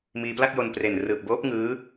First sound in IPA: m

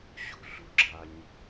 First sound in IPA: ɕ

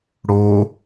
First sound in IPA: ɽ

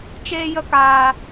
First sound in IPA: t͡ʃ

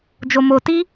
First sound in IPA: d͡ʒ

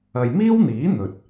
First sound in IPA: ɐ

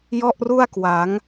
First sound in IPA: j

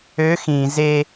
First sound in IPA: ø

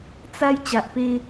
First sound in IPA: t͡s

